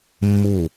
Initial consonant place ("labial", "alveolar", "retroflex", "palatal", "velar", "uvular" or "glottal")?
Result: labial